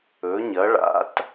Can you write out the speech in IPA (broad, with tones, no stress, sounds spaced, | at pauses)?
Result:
ɵ˧˥ ɲ ɐ˧˥ ɭ a̰˧˥ t